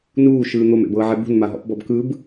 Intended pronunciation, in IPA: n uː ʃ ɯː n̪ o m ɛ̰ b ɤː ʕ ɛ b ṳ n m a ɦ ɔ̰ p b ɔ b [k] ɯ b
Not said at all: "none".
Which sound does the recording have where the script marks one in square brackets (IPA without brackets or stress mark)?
k